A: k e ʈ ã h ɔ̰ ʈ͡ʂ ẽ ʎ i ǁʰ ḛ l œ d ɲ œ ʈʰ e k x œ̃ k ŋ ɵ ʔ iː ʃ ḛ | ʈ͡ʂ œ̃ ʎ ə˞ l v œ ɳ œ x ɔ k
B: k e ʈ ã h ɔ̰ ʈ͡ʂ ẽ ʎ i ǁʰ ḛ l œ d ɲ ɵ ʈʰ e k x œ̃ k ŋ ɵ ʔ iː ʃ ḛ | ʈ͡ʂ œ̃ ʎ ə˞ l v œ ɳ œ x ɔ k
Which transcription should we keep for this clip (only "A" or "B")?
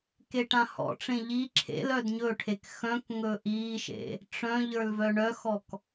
B